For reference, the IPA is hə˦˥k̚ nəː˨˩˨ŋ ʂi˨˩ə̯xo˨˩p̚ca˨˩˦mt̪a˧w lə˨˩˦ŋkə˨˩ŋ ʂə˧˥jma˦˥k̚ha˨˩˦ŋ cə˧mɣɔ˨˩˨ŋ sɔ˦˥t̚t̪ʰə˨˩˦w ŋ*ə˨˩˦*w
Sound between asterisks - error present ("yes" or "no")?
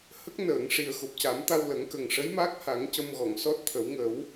no